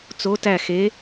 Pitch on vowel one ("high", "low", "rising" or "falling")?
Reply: rising